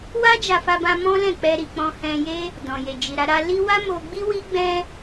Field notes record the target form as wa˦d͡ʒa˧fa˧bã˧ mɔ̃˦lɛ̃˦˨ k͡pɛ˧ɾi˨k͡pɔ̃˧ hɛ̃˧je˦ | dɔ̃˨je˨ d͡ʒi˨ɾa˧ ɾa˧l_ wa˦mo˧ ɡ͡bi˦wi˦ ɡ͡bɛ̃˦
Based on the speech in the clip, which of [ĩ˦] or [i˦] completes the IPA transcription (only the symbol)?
i˦